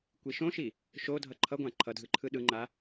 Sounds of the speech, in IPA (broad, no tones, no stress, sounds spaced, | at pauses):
kʷ i ʃ õ ʃ i | ʃ o dʱ ʌ ǃʰ ʌ ɡʷ ã ǃʰ ʌ dʱ ɯ ǃʰ ɯ ɗ ɯ ŋ͡ǃ a